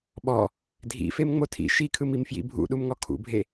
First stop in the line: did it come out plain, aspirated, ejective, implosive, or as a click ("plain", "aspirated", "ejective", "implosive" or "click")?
implosive